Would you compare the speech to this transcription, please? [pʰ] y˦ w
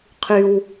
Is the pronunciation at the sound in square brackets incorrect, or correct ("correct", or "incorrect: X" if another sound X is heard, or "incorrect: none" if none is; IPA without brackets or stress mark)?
incorrect: qʰ